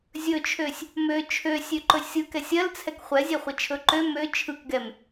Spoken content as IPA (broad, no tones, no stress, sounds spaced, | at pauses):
zʲ ɵ t͡ʃʰ ø sʲ | m ø t͡ʃʰ ø sʲ ø ǃ ɵ sʲ ɯ k ɛ sʲ ɜ l t͡sʰ ɛ k χʷ ɛ zʲ ɛ χʷ ɛ t͡ʃʰ ɵ ǃ ø m ø t͡ʃʰ ɯ k ɡ ɛ m